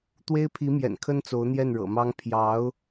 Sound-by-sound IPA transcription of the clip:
t̪ w e˥ ɪ̯ pʰ i˧˥ m j ɛ̰˨˩ n kʰ ə˥ n t͡s o˧˥ ʊ̯ n̪ j ɛ˥˩ n ɻ ɤ̰˨˩ m ɑ˥ ŋ pʰ j ɑ˧˥ ʊ̯

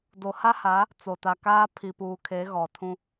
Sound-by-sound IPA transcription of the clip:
d o˨ h a˦ h a˨˦ | t͡s o˨ t a˨ k aː˦ pʰ i˨ p uː˨ kʰ e˨˦ ɣ ɔ˨ tʰ ũ˦

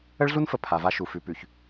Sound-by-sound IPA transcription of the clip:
ə˦ ɭ ɮ u˦ n f ə˨ pʰ a˨ v a˦ ʃ u˨ f ʉ˨ p ʉ˨ ç

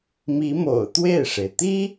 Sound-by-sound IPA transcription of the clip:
m i˧˥ m o̰˨˩ ʊ̯ t̪ w e˥˩ ɪ̯ ʂ e˩ ɪ̯ t̪ i˥

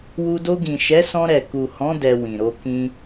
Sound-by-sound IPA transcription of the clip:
w u˧ d o˧ ɡ ĩ˨ ʃ ɛ˨˦ s ɔ̃˧ ɾ ɛ˨ k u˨ h ɔ̃˨˦ d ɛ˧ w ĩ˨ ɾ o˧ k ĩ˧

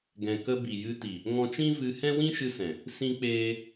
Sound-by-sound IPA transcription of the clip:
ɡ ɛ̃˨ k ə˧ b i˨ j ɨ˧ t i˨ | ŋ ɔ̃˧ t͡ʃ ĩ˦ v ɨ˧ h ɛ̃˦ w ĩ˦ ʃ ɨ˧ s ɛ̃˨ | s ĩ˦ k͡p eː˦

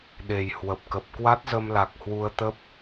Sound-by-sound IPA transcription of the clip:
ɗ e˨˩ j h w ə˨˩ p̚ k ə˨˩ p̚ k w a˦˥ t̚ z ə˧ m l a˨˩ k̚ h w u˧ ə̯ t̪ ə˦˥ p̚

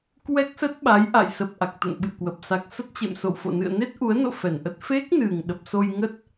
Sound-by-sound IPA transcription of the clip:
k w ɛ˦˥ k̚ s ə˦˥ t̚ ɓ a˨˦ j ʔ a̰˧˨ j s ə˨˩ p̚ ʔ a˨˩ k̚ t̪ ə̰˧˨ n ɓ ɨ̰˧˨ ə̯ k w ə˨˩ p̚ s a˨˩ k̚ s ə˦˥ t̚ t͡ɕ ḛ˧˨ m s o̰˧˨ w f o̰˧˨ n ɨ̰˧˨ ə̯ n e˦˥ t̚ ʔ u˨˦ ə̯ n o̰˧˨ f ɛ˧˩ n ʔ ə˦˥ t̚ f e˦˥ k̚ n ɨ˨˩ ŋ ɗ ə˨˩ p̚ s o˧ j ŋ ə˦˥ t̚

